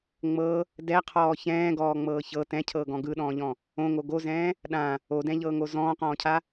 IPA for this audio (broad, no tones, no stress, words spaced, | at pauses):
ŋ͡mɤ | dɛqʰɔː çɛ̃ːɡɔːŋ͡mɤː çɤ tɛ̃cʰɤːɡɔ̃ ɡɯɗɔ̃ːʎɔ̃ | õŋo ɡozɛ̃ː | ɗã | odɛ̃ʎɤːŋo zɔ̃ːqɔ̃ːcʰa